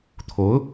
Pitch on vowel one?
rising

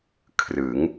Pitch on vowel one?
rising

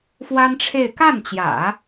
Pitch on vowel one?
high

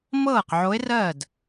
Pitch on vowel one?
falling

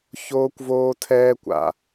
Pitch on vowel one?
high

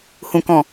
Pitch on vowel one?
low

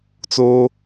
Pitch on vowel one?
high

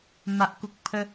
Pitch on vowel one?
low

